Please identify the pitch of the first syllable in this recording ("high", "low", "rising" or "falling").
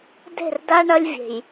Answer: falling